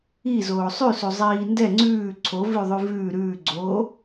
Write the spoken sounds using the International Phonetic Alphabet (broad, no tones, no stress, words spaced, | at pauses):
i zoːsˤʉsu zˤiːndɛ ŋ͡ǀʉː ǀʰovʉðˤʉ vʉː ɾʉːɡ͡ǀoː